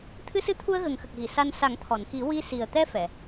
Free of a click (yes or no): yes